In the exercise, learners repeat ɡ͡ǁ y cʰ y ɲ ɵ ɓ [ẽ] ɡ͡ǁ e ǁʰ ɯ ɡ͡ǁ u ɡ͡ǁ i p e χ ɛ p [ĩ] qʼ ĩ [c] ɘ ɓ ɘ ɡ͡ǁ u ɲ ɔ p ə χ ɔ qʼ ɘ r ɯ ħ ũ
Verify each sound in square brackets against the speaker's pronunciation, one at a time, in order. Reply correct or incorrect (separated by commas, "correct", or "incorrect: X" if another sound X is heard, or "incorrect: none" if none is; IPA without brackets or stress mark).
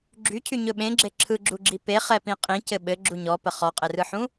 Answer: correct, correct, correct